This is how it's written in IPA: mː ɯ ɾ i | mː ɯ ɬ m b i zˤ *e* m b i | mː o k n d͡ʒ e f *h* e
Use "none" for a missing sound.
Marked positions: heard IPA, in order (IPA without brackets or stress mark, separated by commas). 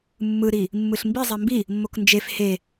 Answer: e, h